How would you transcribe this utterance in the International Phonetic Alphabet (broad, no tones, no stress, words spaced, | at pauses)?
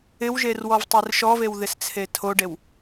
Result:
ɪwʒer wɔvtˤerʃɔvew ðɪst͡sʰetʰoɖew